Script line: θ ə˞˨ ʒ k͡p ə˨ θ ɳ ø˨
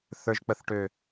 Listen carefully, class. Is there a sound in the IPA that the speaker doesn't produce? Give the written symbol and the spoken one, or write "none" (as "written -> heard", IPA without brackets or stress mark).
ɳ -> ʈ